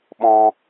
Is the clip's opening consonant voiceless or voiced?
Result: voiced